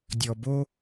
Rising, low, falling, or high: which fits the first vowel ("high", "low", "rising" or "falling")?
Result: low